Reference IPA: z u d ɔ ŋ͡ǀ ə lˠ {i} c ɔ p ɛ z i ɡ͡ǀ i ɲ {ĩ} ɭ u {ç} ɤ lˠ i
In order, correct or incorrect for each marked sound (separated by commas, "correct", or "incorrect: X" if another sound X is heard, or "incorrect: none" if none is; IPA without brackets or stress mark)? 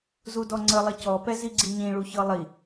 correct, correct, correct